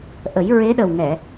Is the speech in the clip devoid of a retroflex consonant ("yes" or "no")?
yes